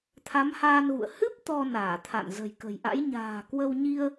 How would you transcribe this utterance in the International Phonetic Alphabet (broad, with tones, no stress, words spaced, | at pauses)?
t̪ʰa˨˦mhaː˧nɣṵ˧˨ə̯ hɨ˦˥p̚ t̪ɔ˧naː˧˩t̪ʰa̰˧˨n zə̤˨˩jkə̤˨˩jʔa̰˧˥j ɲa̤ː˨˩kwə˧wɲi˧ə̯